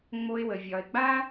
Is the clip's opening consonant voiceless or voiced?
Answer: voiced